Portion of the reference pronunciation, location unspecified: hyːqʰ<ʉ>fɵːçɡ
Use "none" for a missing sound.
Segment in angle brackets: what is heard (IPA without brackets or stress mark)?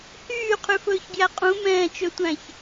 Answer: ʉ